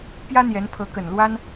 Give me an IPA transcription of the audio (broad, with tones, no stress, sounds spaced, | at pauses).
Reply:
p j ä˥ n̪ j ɛ˧˥ n pʰ ɤ˧˥ k ə˨˩ n l w a˥ n